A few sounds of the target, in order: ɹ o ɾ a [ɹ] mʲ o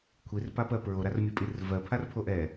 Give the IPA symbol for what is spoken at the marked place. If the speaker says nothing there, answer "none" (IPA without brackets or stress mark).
r